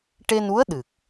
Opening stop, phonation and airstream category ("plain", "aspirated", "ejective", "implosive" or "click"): plain